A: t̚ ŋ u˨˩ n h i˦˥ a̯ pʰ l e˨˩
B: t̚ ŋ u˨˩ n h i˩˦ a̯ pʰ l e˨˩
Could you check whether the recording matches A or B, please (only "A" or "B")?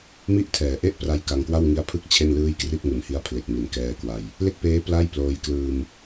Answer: A